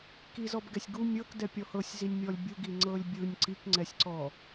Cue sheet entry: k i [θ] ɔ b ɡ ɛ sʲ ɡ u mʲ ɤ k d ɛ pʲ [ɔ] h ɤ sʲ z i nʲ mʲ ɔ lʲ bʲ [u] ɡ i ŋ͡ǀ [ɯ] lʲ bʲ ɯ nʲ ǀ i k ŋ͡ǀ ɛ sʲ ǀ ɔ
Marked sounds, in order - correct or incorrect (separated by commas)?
incorrect, correct, correct, incorrect